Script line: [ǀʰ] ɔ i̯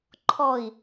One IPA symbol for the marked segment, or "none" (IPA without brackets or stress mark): ǃʰ